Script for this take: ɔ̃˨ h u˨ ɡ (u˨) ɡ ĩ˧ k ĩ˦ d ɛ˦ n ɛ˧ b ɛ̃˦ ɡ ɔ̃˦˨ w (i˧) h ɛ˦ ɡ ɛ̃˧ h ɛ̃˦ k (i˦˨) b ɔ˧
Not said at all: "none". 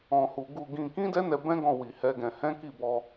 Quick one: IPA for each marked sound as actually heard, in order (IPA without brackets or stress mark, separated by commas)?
u˧, i˧, i˦˨